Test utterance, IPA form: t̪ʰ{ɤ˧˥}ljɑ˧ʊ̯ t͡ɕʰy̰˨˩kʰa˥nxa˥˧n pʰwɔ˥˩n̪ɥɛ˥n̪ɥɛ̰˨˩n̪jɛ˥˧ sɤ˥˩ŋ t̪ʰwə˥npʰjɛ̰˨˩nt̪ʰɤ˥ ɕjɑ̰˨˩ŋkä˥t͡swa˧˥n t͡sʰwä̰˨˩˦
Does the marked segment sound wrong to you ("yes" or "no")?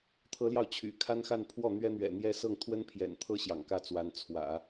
no